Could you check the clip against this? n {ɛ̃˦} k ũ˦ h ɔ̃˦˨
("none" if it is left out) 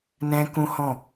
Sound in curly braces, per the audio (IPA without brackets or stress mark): ɛ̃˦